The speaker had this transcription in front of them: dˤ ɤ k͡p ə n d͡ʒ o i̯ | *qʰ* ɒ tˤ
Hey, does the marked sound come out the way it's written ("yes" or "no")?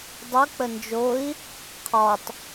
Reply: yes